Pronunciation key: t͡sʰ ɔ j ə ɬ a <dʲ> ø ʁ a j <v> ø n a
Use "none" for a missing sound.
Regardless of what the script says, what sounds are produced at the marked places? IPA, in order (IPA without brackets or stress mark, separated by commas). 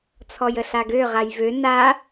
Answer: ɡ, v